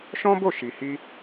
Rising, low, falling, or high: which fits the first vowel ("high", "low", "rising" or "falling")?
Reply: high